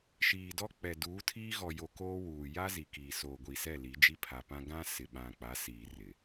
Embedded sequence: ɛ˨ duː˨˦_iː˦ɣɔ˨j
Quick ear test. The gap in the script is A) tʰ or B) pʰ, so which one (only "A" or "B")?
A